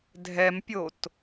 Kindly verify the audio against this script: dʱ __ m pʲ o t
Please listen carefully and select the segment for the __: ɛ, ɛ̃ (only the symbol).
ɛ